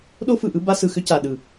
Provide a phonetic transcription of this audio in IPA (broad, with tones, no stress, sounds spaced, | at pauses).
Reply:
ɗ o˦ f ɯ˨ ʔ ɯ˦ b a˦ s ɯ˨ x ʏ˦ c a˨ ɗ ɯ˨